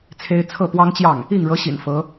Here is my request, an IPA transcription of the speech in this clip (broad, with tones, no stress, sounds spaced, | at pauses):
t͡sʰ e˥ ɪ̯ t͡sʰ ɤ˥˩ p w ɑ˥ ŋ t͡ɕ j ɑ˥˩ ŋ | i˥˩ ŋ ɻ ɤ˧˥ ɕ ḭ˨˩ n f ɤ˧˥